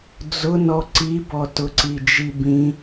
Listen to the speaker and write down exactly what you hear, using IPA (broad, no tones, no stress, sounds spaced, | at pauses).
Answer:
d͡z ʊ n ɔ ǀ i b ɔ t ʊ ǀ i d͡ʒ i b ĩ